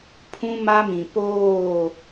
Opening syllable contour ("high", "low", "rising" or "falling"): high